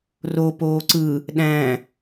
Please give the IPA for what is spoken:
r o p oː ǀ ɯ | ɗ æ̃

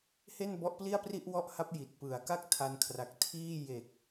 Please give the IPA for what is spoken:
h e˥˩ n b ɔ˦˥ ʔ p l i˥˩ a̯ p r i˥˩ ʔ w ɔ˥˩ ʔ h a˦˥ p̚ j i˨˩ t̚ p ɯ˨˩ a̯ k a˥˩ k̚ tʰ a˧ n kʰ r a˨˩ k̚ tʰ iː˥˩ j e˨˩ k̚

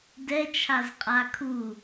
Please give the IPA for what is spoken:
d ɛ t͡ʃʰ a z qʼ a kʰ u

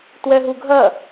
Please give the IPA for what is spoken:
t w ɛ ɦ u ɡʱ ɐ

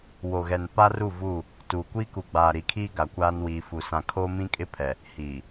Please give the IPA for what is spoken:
w o˨ ɣ ɛ˨ n p a˦ r u˦˨ v uː˦˨ | t uː˨ kʷ iː˦ k u˨ ɡ͡b aː˨ ɾ i˨ kʰ iː˦ ɡ a˨ kʷ aː˦ n w iː˨ f u˨ s ã˨ kʰ oː˦ m ĩ˦ kʼ ɪ˦ pʰ ɛ˨ | h iː˨

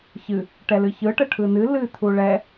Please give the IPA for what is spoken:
ç ɨ | ʈ ɛ l ɨ ç ɯ ʈ ə ʈʰ ɯ n ɨ l ɨ t̪ʰ u ɭ ɛ

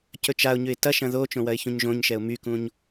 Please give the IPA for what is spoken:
c ɵ t͡ʃ a ʊ̯ ɲ ʉ ɪ̯ t ɐ ʃ ɐ̃ ð o t͡ʃ õ w ɐ ɪ̯ ç ũ ɲ ʒ õ ɲ ʃ ɛ ʊ̯ m y k ũ ɲ

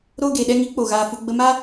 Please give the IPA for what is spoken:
ɾ oː˦ ɡ eː˨ ɗ ɛ˦ ŋ i˨˦ k͡p o˨ ɣ aː˧ f u˧ ɡ͡b ə˧ m a˦

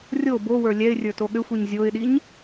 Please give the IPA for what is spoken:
rʲ o b o w ə˞ lʲ ɛ ɪ̯ rʲ ə˞ t o ɠ ʏ xʷ i ɲ zʲ o ɪ̯ ɗ i ɲ

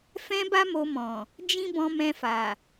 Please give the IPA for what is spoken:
f ɛ̃˦ b a˦ m o˧ m ɔ̃˨ | d͡ʒ ĩ˦ b ɔ̃˧ m ɛ̃˧ f a˨

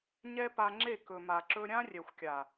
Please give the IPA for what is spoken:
ɲ ɛ˦ p a˧ ŋ͡ǁ e˦˨ k ɵ˨ m a˨ ǁ ɵ˧ ɾʲ ã˦ rʲ ɛ˨ xʷ kʲ a˨

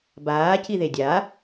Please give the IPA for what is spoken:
b aː c i ð e dʲ a

